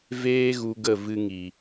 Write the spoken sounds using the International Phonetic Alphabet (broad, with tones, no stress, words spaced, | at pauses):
veː˦ ɣu˧ ɡə˦˨ vɨ˧ ŋi˨